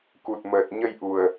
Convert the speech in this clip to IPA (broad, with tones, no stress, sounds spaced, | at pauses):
k u˨˩ t̚ m əː˨˩ t̚ ɲ ə˧ j ʔ u˨˩ ə̯